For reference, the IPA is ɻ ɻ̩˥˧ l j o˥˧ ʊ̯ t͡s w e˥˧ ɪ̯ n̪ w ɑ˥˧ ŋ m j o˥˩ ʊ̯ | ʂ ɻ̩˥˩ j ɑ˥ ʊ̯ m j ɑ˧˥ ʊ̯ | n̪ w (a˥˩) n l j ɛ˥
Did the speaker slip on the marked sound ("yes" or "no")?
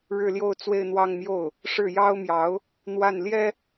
no